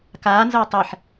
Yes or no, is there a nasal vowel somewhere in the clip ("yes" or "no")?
no